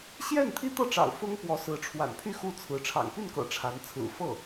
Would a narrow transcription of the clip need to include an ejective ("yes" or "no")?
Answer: no